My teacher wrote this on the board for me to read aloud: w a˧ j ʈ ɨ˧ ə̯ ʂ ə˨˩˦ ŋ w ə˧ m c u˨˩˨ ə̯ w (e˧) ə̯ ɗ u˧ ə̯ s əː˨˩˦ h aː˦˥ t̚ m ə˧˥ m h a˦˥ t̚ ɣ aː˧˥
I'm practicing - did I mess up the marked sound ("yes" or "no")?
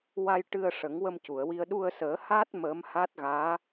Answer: yes